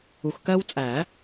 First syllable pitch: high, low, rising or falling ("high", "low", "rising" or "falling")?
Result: low